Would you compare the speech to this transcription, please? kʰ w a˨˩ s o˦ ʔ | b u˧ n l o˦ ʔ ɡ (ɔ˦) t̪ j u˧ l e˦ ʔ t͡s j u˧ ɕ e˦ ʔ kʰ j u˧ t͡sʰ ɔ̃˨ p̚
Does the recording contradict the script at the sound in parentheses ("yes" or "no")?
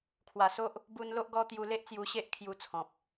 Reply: no